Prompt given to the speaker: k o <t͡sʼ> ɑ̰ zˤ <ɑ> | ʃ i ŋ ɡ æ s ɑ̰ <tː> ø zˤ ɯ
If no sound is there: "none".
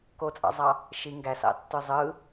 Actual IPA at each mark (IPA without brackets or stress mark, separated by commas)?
t͡sʼ, ɑ, tː